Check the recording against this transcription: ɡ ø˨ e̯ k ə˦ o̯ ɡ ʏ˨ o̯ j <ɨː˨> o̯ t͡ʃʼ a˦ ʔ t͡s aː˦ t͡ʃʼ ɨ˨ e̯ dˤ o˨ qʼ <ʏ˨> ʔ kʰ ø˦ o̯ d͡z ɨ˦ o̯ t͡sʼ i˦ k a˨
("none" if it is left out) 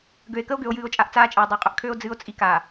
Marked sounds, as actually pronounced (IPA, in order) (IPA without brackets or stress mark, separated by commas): ɨː˨, ʏ˨